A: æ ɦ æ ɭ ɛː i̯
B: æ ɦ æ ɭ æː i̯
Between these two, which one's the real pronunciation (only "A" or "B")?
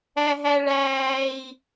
B